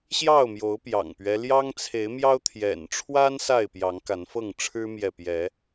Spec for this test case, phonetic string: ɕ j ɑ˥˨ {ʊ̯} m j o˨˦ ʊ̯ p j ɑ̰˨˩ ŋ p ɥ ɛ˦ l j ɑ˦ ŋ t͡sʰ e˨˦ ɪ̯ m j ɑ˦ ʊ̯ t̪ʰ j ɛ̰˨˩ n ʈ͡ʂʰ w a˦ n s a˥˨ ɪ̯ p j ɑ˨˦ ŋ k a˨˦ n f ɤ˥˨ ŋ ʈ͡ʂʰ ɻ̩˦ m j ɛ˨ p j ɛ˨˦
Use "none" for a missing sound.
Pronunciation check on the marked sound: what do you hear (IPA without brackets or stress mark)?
ʊ̯